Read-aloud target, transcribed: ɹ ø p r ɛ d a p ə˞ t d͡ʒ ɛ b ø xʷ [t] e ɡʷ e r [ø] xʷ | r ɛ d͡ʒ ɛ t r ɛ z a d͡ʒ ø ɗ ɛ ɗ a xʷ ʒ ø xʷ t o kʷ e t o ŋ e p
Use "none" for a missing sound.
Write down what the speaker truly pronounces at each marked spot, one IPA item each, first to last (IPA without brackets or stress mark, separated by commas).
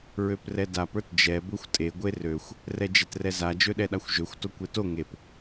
tʼ, ø